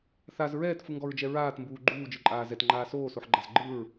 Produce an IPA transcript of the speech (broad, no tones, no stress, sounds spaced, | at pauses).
θ a z ɹ ɛː t f ɯ ŋ ɡ ɔ ɹ d͡ʒ ɛ ɹ aː t m b uː ɡ͡ǃ uː d͡ʒ ɯ ǃʼ aː z ɛ t ŋ͡ǃ aː s oː s o ħ ɡ͡ǃ a z ɡ͡ǃ ɯ ɹ